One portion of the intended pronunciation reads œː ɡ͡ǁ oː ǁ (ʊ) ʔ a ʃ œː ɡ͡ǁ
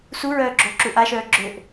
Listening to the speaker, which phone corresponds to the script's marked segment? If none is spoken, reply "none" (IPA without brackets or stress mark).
u